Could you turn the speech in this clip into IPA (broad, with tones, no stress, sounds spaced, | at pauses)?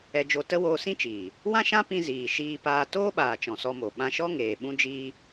ɛ˧ d͡ʒ o˧ t ə˦ w oː˧ s ĩ˦ t͡ʃ iː˨ | w ã˦ ʃ ã˦ p ĩ˧ z iː˨ ʃ iː˧ p aː˧ t oː˦ ɓ aː˨ t͡ʃ ɔ̃˨ s ɔ˧ m o˨ ɓ ã˧ ʃ ɔ˦ ŋ eː˨ ɓ ũ˦ d͡ʒ iː˦